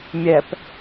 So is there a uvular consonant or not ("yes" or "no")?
no